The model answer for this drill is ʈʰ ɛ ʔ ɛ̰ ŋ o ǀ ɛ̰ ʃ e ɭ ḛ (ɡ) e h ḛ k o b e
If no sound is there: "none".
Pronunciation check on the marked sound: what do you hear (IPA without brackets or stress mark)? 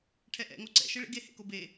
ɡ